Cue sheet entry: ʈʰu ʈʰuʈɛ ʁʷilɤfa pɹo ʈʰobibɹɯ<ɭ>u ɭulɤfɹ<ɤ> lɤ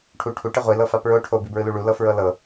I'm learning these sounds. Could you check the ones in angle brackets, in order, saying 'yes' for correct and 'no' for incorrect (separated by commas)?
no, yes